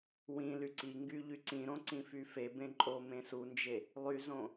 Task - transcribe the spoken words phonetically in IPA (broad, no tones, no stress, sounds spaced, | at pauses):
w ĩ l y ǀ i ŋ ɡ y ʎ y ǀ ĩ ɾ õ ǀ ĩ f y f e b ẽ ǃʼ o m ẽ s u n d͡ʒ e | lˠ y z õ